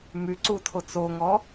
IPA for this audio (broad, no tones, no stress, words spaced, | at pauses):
myǀutʰo t͡soŋɔ